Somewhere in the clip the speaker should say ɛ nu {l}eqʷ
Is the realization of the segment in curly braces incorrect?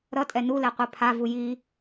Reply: no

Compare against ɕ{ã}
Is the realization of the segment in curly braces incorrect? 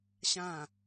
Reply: no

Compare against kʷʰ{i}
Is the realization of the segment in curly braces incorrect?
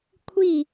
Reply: no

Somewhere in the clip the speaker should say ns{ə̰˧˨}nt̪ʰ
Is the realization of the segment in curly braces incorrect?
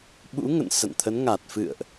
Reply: no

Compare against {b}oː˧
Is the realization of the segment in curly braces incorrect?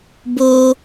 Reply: no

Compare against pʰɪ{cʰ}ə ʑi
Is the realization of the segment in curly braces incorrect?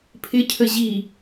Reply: no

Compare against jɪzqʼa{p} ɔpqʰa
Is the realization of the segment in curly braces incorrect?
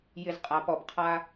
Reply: no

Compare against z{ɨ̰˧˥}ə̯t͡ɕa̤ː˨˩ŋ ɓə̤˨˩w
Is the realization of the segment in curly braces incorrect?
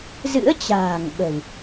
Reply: no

